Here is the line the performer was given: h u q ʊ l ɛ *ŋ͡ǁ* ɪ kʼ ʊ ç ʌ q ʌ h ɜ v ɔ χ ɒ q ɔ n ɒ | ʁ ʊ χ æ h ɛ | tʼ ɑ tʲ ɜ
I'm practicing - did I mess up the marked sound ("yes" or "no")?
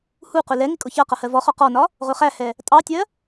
yes